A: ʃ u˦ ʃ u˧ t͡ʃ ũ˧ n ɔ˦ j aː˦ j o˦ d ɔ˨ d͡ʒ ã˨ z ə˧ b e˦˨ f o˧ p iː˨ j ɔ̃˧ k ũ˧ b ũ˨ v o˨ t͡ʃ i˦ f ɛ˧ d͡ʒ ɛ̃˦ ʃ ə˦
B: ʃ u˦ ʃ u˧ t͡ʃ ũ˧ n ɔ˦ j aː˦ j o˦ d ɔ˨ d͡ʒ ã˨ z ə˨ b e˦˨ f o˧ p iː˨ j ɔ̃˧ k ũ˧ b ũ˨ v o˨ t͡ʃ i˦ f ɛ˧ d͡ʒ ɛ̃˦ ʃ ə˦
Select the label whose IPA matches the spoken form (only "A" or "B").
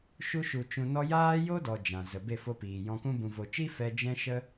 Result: B